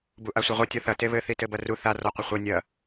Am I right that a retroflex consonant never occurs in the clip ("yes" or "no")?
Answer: yes